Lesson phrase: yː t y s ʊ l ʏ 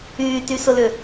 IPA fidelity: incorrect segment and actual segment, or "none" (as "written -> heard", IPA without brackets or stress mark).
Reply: none